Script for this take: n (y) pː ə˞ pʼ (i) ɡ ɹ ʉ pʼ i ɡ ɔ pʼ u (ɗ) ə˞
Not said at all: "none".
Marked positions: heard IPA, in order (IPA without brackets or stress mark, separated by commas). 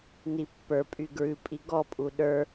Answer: i, y, ɗ